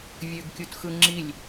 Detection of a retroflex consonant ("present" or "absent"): absent